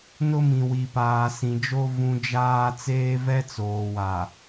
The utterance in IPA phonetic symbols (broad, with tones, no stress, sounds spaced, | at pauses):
n ʊ˦ m ĩ˨ w i˨ p aː˨ s ĩ˨ d͡ʒ o˦ v ũ˨ d͡ʒ aː˦ t͡s eː˦ v ɛ˦ t͡s oː˨ w a˨